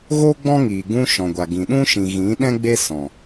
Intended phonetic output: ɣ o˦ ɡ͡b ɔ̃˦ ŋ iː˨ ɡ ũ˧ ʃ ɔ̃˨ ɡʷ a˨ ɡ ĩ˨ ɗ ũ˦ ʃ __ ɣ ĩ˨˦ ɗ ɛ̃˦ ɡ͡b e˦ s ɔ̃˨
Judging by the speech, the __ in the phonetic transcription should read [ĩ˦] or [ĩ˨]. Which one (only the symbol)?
ĩ˨